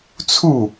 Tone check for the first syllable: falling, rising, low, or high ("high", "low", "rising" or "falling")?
falling